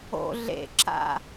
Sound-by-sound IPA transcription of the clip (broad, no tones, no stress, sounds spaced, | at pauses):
o̰ ɮ ḛ ǁ a̰